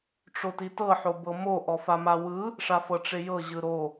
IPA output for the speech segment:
ʈ͡ʂotitɤ ħobɤmo ʔɔfamawɯ | ʂafɤʈ͡ʂejɤ ʑɯɾo

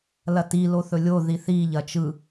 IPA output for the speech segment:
lɐti loθɵlʲo ðiθi ʎɐt͡ʃɯ

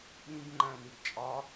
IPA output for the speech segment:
ɓĩb ŋ͡ǃæ̃nibt͡ʃʼɒ

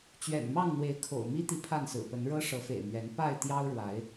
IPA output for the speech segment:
t͡ɕɥɛ̰˨˩nmɑ˥˨ŋn̪we˨˦ɪ̯ kʰo̰˨˩ʊ̯ mi˦t̪i˨ pʰa˥˨nsɹ̩˨˩pə˨˦n ɻɤ˦ʂɤ˨˦fḛ˨˩ɪ̯mɥɛ˨˦n pa˥˨ɪ̯ t̪jɑ˦ʊ̯ɻwa˨˦ɪ̯

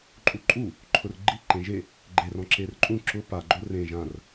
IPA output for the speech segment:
ǃʼuǃʼu | ǃʰʊrɡ͡ǃi ǃẽʒe | ɡ͡ǃe rɔ̃ǁerǃʼũ ǁʊ pa ɡ͡ǃorẽ ʒãr

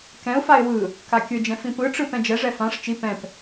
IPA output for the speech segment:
kɛ̃ʊ̯faɪ̯ wɯ | kakʲɯd͡ʒɛ̃ fĩpɯʈ͡ʂɯ pɛ̃d͡ʒɛʐɛ fãʂ t͡ʃi pɛ̃p

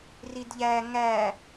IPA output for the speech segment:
ridʎæ ŋæ

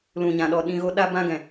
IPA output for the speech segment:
lũ˨ɲã˨ɗɔ˨ ɗĩ˧ɣo˦ ɗa˧bã˧ɡɛ̃˨

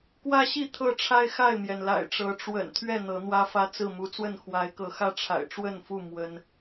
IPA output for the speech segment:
kwä˦ɕi˥˨ t̪ʰɤ˥˨ʈ͡ʂʰa˦ɪ̯ xa˥˨ɪ̯mjɛ˩nla̰˨˩ɪ̯ʈ͡ʂɤ˨˦ ʈ͡ʂwə̰˨˩nt̪ʰɥɛ˥˨ n̪ɤ˨˦n̪wä˦fä˦t͡sɹ̩˥˨ mu˨˦t͡swə˥˨nxwa˨˦ɪ̯kɤ˨˦ xä˥˨ʈ͡ʂʰa̰˨˩ɪ̯ʈ͡ʂwə˥˨nfu˥˨ mwə˦n

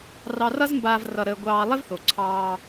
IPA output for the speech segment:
rɑ˧rʌ˥zmbaː˧v rʌ˧ɾəː˧ ɡʷɑː˧ lˠɪ˥vθo˩ ǀʰɑː˧

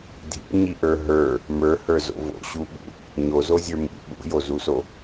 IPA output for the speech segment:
dʱḭɲiʔə˞ ɦə˞ | mə˞hə˞zo̰ vo̰ɕuɓṵ | ɲozozʲə˞ mḭ ɓṵjozuso

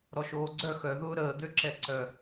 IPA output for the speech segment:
ɾɔʃoːɡ͡ǀœ xœ ðʊːɾəː d̪øǁɛǀœ

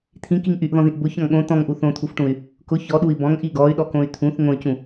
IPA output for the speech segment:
t̪ʰĩkiŋ ʔyʔðɔ̃ðĩʔ bʊçɔ̃ŋ ɠõ t̪ɔ̃ŋʔu θõt̪ʰufʈũy̯ | kʊ çɔɗui̯ bɔ̃ŋʔi ɡɔy̯ɗɔkõy̯ t̪ʰũθ ŋõy̯cũ

